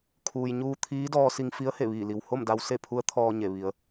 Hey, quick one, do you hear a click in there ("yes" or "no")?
no